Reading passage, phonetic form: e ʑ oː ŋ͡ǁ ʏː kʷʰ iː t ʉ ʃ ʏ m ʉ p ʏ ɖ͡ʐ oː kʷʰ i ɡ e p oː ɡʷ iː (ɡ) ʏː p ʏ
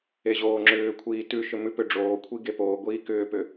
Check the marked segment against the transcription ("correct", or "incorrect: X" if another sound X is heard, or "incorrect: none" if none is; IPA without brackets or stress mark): incorrect: k